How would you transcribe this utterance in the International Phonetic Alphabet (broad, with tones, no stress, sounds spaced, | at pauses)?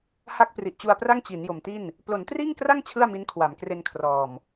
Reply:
h a˥˩ k̚ p r i˨˩ ʔ t͡ɕ u˧ a̯ p r a˥˩ ŋ t͡ɕ i˩˦ n j o˨˩ m t i˥˩ n | p l o˩˦ n t r iː˥˩ ŋ k r a˥˩ ŋ t͡ɕʰ ɯ˥˩ a̯ m i˦˥ n kʰ w a˩˦ m k r e˧ n kʰ r ɔː˨˩ m